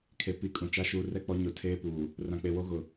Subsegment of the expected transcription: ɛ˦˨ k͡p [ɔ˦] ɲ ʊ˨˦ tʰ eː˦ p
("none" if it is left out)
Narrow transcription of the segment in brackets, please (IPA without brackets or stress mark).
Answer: ɔ˦